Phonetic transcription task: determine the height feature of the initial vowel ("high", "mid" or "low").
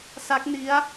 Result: low